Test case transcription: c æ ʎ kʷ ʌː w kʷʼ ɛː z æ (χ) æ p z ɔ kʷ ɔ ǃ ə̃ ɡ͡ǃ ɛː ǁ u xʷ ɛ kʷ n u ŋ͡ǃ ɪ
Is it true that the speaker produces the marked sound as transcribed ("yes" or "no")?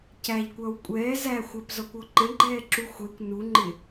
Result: no